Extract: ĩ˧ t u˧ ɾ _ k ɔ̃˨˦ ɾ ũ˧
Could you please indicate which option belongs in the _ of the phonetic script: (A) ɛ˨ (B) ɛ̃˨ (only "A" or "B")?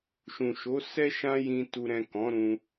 B